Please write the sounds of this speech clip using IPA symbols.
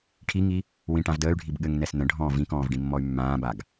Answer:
ʈʰiŋi | wĩʈãv dəːy̯ɖʱib ɠɘŋnɛs nə̃ɖʱɔ̃ː vĩkɔ̃ːvɖĩmːɔy̯ mːãːbaɡ

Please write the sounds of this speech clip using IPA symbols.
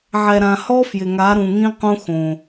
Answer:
ʕɛ˨ɾã˨hɔ˦ fjɪ˨ŋa˨˦ɾũ˨ŋĩ˦ qũ˦ xõ˨

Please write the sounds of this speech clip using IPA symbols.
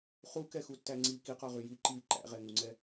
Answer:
χukɛxutːæ ŋ͡ǀi kiqɔʁy ji ǃi ǃæ̰ʁɛŋuŋ͡ǀɛ

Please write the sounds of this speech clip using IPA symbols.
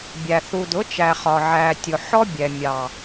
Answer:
bʲæ˨ θu˨dʊ˨˦t͡ʃæ˨ χɒ˨ ʕæ˨tʲʊ˨ ħɔ˦bʲɛ˨ mʲɑ˨

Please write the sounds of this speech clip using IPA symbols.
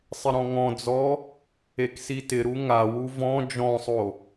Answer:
sˤɪɾɔ̃ŋɔ̃d͡zɔ | eksitɪɾu ŋawu vɔ̃ d͡ʒɔ̃sˤo

